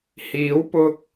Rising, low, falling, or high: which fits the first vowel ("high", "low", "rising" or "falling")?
rising